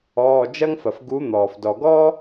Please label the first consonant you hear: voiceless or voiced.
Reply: voiced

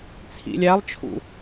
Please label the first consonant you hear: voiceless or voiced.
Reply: voiceless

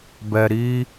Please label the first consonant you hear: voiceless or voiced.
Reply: voiced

